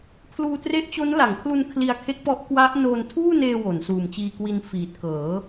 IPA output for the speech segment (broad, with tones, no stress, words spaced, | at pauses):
pʰluː˧tre˦˥ʔt͡ɕo˦˥n la˩˦ŋkʰlu˧n kʰli˧a̯kʰe˦˥k̚pɔ˦˥ʔ kwa˦˥ʔ noː˧ntʰuː˥˩neː˧ wo˩˦nsuː˨˩mt͡ɕiː˧ kwi˧nfiː˨˩t̚ kɤː˩˦